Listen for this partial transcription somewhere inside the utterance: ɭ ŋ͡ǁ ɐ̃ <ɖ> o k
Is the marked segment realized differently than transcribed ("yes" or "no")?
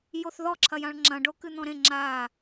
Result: no